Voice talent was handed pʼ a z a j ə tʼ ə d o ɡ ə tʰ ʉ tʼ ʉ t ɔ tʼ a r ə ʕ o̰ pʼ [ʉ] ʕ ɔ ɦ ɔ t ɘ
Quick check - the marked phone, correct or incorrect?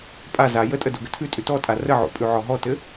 correct